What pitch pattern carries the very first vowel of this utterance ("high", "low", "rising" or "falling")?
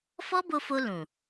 high